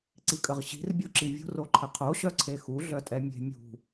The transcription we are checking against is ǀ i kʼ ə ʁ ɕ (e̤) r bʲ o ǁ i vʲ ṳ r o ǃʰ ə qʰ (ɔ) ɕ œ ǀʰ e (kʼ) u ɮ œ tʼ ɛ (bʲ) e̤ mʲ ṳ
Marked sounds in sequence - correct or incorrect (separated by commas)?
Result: incorrect, incorrect, incorrect, incorrect